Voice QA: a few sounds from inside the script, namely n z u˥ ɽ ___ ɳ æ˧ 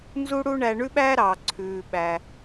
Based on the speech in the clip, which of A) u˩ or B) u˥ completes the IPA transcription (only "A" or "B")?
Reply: B